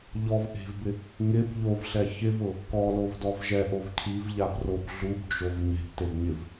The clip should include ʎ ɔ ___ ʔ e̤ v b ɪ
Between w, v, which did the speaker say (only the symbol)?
v